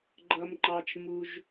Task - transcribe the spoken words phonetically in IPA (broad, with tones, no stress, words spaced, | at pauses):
ɡ͡ǃʌ˩mŋ͡ǃɑ˩t͡ʃmu˩ʒ